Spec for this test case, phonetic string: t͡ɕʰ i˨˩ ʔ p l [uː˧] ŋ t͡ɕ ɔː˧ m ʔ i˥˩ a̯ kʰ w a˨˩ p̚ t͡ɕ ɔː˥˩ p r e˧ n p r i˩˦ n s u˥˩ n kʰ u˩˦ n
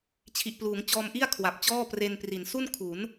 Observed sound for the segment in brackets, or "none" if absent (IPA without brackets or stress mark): uː˩˦